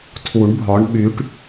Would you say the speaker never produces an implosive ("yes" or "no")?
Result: no